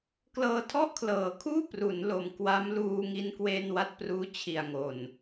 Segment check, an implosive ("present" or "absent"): absent